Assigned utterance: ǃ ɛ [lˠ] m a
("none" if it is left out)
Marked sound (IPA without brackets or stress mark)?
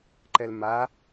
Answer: l